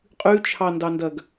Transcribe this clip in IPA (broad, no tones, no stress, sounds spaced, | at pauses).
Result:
qʼ ʉ t͡ʃʰ ɑ n d ɑ n d ɐ ɡ